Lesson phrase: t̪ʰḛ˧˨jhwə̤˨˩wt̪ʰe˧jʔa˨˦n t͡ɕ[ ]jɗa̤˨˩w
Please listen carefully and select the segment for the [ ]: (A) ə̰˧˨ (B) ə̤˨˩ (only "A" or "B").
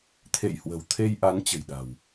B